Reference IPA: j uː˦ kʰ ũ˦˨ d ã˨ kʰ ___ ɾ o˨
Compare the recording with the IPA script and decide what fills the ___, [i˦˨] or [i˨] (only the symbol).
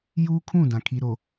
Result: i˨